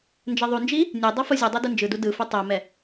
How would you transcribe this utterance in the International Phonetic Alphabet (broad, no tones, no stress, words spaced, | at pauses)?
nd͡ʒɛðˤund͡ʒi | nʲɛ dˤʌfozʲɯdˤo dɯnd͡ʒɯdu dɯfu tˤomɛ